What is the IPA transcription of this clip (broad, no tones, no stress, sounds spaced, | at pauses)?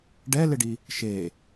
ɖ ɛ l ɪ ɖ i | ʃ e